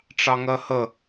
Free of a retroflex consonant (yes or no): no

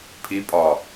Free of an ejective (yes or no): no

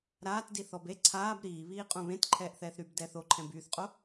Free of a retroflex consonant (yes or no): yes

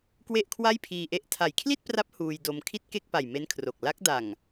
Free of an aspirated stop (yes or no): no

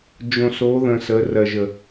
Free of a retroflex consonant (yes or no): yes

